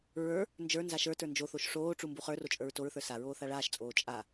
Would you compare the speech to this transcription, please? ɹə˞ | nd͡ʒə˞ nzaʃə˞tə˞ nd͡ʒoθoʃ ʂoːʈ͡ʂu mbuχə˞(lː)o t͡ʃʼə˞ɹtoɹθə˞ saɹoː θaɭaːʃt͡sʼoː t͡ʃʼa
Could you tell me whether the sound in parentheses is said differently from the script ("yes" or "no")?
yes